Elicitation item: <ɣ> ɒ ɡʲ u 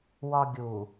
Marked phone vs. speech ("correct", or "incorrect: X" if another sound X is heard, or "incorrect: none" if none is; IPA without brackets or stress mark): incorrect: w